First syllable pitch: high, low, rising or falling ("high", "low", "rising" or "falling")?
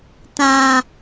high